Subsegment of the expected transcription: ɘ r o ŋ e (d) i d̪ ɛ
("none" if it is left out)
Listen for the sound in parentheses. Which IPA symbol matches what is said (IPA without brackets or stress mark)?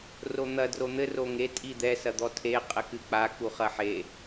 tʼ